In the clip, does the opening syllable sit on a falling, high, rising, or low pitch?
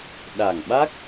low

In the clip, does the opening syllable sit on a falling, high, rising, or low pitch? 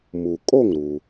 low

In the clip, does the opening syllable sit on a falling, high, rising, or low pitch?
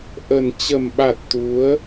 low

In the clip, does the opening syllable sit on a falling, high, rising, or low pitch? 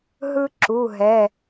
high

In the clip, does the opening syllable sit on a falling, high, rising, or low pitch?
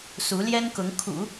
rising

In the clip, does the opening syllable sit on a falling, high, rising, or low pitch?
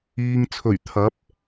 low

